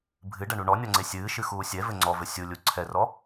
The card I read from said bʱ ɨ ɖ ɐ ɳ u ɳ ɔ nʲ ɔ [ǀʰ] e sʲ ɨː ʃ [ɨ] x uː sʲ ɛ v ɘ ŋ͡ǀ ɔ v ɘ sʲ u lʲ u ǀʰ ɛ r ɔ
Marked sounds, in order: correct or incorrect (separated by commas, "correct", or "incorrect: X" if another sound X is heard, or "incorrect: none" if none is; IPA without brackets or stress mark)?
incorrect: ŋ͡ǀ, correct